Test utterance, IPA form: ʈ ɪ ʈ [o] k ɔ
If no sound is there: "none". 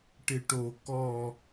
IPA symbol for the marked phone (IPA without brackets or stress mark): o